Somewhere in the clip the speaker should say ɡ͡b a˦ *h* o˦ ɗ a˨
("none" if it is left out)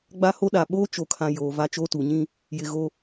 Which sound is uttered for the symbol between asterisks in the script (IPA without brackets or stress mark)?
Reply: h